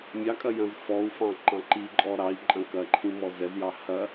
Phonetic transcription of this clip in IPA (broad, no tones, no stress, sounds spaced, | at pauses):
mʲ ɑ kʼ ɐ j ɐ̃ z f ɔ u̯ f ɑ̃ ǃ ɑ̃ ǃ i ǃʼ ɔ ɾ ɑ i̯ ǃʼ ɐ̃ k ɐ ǃʰ ĩ m ɔ z ɛ z j ɑ h ɐ